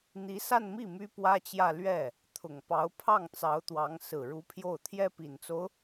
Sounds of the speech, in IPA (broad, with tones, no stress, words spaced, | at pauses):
n̪i˧˥sa˥˧nmi˥˩ my˥pwä˥t͡ɕjä˥˧ lɥɛ˥˩ | t̪ʰʊ˨˩ŋpɑ˧˥ʊ̯ pʰɑ˥˩ŋt͡sɑ˧˥ʊ̯t̪wɑ˧˥ŋ sɹ̩˨˩ɻu˧˥pʰjo˥˩ʊ̯ t̪ʰjɛ˥pi˨˩nt͡so˦ʊ̯